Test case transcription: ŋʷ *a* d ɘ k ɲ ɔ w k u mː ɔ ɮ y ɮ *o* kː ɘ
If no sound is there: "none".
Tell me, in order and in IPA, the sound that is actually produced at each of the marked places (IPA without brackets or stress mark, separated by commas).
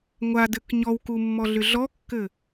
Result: a, ɔ